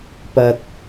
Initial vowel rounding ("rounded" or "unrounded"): unrounded